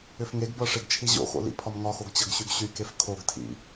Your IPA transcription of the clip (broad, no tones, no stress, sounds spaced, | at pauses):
ʏ f ŋ e ɡ b ɤ ʂ e ɡ t͡ʃʰ i ʑ o̰ x o̰ l ḭ pʰ ɒ m ŋ ɒ x o ɡ t͡ɕ ɤ ɡ ɕ y ɡ ɕ y k e f kʰ o ɡ tʰ ḭ